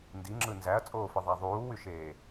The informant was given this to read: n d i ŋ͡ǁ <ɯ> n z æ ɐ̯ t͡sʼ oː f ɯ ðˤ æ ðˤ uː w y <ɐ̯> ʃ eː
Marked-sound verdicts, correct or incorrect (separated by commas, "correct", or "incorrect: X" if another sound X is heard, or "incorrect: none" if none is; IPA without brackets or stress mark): correct, incorrect: none